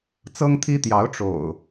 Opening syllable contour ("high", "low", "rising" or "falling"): high